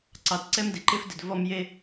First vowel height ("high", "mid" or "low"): low